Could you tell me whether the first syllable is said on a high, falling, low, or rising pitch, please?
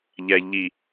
low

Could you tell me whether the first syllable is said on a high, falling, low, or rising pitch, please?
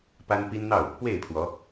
high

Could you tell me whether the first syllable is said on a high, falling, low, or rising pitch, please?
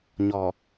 low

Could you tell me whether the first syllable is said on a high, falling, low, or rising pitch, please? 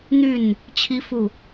falling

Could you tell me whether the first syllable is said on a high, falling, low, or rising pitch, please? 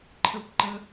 rising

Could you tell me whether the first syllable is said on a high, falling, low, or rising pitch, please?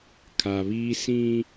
low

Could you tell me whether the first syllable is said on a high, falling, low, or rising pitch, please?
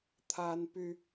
high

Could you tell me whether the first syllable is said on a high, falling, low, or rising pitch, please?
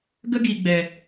high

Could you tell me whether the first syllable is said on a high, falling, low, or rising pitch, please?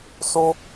high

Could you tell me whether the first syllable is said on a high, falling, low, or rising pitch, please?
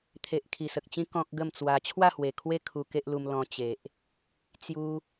low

